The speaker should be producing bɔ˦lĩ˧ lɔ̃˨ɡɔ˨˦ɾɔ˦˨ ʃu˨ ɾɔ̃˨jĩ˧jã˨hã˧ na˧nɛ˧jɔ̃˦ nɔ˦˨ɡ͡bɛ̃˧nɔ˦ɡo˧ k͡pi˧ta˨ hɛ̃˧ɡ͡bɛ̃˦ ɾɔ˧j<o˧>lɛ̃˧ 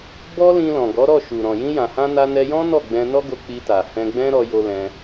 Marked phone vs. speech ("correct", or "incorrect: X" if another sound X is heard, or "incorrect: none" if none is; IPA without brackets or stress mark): correct